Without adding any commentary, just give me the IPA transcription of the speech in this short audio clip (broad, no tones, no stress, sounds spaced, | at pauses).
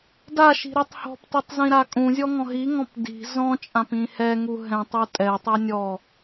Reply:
d a ʃ i̤ ɾ ɛ tˤ h ɔ̤ p t i tˤ z ĩ ɾ a kʼ ũ zʲ ɔ ŋ ɔ̃ ɦ i ŋ ɔ̃ p d i̤ z ɔ̃ t͡ʃʼ ã p ĩ h ɛ ŋ u ɦ ɛ̃ tˤ u tʼ ɛ tˤ ɛ nʲ ɔ